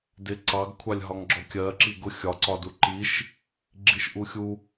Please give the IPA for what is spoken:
dɪ ǀɑɡkʷʰɑlʲ ɦɒŋɡ͡ǁɔkʲɜ ǁiɡʊ xʲɒǀɒdu ǃiʃ | ɡ͡ǁiʃʔuxʲu

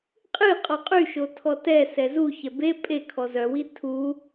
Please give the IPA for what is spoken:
qʼɨ qʼɔqʼyʃo tʰɔtɛsɛ zuçɛ be pʼekʰɔ zœwi tʰu

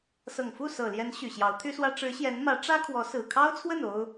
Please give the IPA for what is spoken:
sɤ˨˩ŋfu˥˩ sɤ˨˩ljɛ˧˥n ɕy˨˩ɕjɑ˧˥ʊ̯t̪ʰy˥swä˥ ʈ͡ʂɻ̩˧˥ɕjɛ˧˥nmä˧˥ ʈ͡ʂä˥kʰwɔ˧˥ sɹ̩˨˩kʰɑ˥ʊ̯t͡sʰwə˥˩n o˥ʊ̯

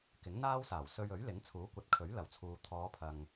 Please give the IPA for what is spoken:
kɪ˨˥ŋn̪aː˥wsaː˨˩w sɵ˧ɥɵ˨˥ɥlɪ˨˥ŋ t͡sʰuː˨˥kʷɐ˨˥t̚kʰɵ˨˥ɥ lɐ˨˩wt͡sʰuː˨ t̪ʰɔː˨˧pʰɐ˨ŋ

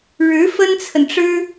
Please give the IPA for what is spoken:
ɻɻ̩˧˥ fə˥nt͡sʰə˨nʈ͡ʂɻ̩˥

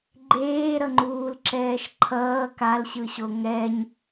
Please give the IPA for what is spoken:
ɡ͡ǃeːɾʌŋ͡ǃuːlǁɛːʃ ǃʰʌː kalɕɯɕo ŋɛɲ

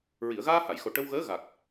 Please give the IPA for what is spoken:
ɹi˨˩˨ə̯ɣaː˧ha˨˩˨jxo˨˩ ʈə˧wɣəː˧˥ ɣa˨˩k̚

